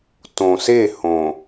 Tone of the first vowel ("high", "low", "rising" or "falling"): low